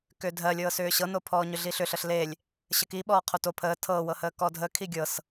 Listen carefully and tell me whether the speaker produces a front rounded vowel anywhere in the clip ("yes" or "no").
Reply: yes